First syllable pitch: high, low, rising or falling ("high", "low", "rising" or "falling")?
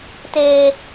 high